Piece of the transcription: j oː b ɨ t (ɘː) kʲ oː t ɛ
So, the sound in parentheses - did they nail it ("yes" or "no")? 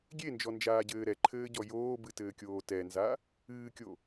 yes